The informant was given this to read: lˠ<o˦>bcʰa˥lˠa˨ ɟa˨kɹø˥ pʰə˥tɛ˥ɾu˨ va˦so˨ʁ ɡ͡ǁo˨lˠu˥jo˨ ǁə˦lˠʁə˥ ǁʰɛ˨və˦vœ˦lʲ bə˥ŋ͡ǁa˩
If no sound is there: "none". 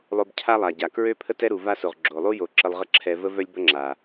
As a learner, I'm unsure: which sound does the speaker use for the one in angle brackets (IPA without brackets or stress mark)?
o˦